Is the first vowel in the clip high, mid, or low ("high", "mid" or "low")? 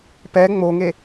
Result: mid